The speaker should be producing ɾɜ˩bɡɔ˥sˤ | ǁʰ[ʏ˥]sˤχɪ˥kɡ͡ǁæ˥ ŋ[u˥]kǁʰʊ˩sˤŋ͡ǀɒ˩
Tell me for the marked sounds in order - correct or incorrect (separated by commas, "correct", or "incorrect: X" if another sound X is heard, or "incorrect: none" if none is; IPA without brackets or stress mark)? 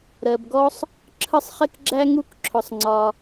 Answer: incorrect: ə˥, correct